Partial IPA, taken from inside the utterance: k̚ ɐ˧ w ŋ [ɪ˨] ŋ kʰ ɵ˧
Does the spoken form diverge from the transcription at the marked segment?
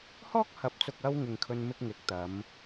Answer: no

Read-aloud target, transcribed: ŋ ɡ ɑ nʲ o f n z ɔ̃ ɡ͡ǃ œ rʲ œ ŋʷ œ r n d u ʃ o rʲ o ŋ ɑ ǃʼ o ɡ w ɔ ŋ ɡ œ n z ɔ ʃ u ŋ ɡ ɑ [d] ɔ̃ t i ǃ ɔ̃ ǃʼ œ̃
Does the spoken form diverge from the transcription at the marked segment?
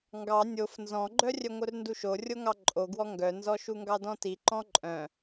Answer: no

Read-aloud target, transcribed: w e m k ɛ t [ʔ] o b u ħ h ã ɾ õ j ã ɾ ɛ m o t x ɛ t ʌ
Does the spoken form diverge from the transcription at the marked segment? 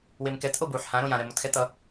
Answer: no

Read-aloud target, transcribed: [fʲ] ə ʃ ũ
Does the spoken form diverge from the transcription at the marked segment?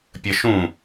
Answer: yes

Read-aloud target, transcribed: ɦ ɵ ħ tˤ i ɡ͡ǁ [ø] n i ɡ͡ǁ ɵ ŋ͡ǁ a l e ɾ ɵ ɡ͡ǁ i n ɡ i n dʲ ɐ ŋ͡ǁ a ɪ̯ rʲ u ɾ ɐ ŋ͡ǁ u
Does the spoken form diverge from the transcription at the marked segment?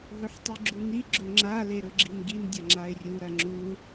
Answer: yes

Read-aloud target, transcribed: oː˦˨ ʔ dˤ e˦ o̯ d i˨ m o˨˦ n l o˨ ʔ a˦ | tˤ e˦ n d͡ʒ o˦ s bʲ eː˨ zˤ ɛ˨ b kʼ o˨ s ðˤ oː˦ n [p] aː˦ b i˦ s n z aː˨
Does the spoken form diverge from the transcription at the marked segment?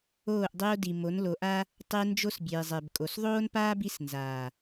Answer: no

